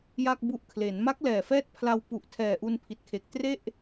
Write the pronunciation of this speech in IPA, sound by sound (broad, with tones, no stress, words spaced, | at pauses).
ja˥˩k̚bu˦˥ʔkʰle˩˦n ma˦˥k̚lɛː˨˩fɛː˦˥t̚ pʰla˧wpu˨˩ʔtʰɛː˨˩ ʔu˧npʰi˨˩t̚kʰe˨˩k̚ tre˥˩ʔ